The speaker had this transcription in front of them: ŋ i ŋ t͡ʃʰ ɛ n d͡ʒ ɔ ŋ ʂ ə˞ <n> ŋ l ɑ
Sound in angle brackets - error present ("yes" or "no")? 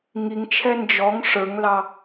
yes